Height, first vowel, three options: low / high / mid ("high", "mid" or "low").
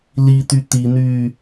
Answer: high